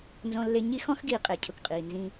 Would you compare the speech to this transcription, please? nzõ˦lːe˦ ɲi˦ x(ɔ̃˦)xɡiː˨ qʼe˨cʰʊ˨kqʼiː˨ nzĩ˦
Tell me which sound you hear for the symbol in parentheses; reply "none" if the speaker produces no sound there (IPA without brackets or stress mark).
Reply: ɔ̃˦